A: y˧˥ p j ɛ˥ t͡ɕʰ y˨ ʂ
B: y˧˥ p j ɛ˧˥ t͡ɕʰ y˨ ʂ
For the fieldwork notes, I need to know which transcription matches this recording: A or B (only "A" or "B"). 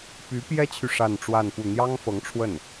A